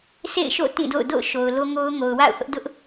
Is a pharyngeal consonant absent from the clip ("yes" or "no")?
yes